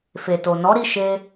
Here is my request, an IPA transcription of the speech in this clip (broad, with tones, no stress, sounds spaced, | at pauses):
f e˨ t o˨ n ɔ˨˦ ɾ i˦˨ ʃ e˧